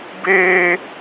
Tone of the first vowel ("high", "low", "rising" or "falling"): high